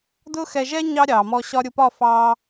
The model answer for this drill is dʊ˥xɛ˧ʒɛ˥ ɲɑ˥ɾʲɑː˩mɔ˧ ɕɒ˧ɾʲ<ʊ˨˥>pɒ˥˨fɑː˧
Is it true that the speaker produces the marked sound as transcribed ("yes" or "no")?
no